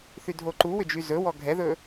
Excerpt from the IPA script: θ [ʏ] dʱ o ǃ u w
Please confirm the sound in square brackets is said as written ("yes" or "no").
no